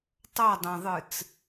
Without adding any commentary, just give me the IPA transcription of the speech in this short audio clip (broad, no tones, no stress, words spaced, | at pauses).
tˤʌdˤɛ̃ðˤɯt͡s